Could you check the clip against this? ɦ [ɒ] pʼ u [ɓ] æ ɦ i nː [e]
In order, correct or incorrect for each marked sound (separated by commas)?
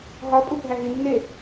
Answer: correct, incorrect, correct